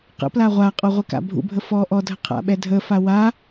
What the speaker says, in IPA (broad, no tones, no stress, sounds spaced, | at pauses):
q ə̰ p l a ʁʷ a qʼ ɔ ʁʷ ɪ k a̰ bʱ ṵ bʱ ə f ɔ ʔ ɔ dʱ ə qʰ a̰ ɓ ɛ dʱ ə f a w a